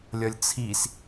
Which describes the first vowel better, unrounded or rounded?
rounded